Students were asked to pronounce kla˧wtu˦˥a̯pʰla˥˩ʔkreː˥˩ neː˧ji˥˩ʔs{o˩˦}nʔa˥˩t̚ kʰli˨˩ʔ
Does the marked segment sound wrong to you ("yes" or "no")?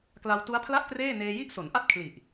no